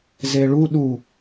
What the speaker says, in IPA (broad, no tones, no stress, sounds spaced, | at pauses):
z e ɭ u ɗ u